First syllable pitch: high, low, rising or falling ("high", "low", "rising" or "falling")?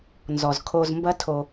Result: low